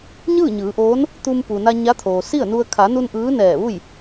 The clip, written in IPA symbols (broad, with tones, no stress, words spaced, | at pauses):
ɲɯː˥˨ɲɯː˩˧ʔoː˧˥n | t̪u˧mpu˩na˧ ɲa˧˥t̪ʰoː˩si˥˨ə̯nu˧ə̯ kʰa˩˧nu˧n ʔɯː˧˥nɛː˧˩ʋu˥˨j